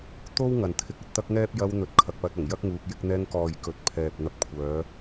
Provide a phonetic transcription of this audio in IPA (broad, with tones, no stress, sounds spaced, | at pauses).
t̪ o˥ w ŋ ɐ˨ n t̪ʰ ɪ˧ k̚ ɐ˨ t̚ t̪ ɐ˥ k̚ ŋ ɛː˥ p̚ j ɐ˧ w n̪ ɵ˨ t̚ kʰ ɐ˨ k̚ p ɐ˧ t̚ ɐ˨˩ ŋ j ɐ˥ k̚ ŋ uː˧ k̚ j ɪ˧ k̚ n̪ ɛː˧ ŋ k ɔː˨ j k ɵ˨˥ t̚ pʰ ɛː˨ p̚ n̪ ɐ˨˥ p̚ kʷʰ œː˨˧